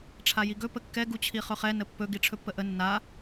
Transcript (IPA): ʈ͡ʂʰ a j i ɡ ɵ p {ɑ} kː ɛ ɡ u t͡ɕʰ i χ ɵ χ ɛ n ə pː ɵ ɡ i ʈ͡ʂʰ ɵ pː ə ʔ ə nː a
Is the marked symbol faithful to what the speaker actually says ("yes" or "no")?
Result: no